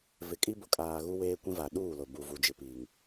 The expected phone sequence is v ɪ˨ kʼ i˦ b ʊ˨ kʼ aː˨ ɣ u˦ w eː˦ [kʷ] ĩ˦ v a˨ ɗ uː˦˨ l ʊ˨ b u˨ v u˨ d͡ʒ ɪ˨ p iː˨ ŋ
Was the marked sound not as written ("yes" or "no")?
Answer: no